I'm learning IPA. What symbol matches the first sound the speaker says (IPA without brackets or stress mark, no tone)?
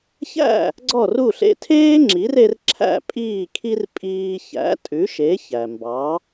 ç